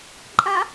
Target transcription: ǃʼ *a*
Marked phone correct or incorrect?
correct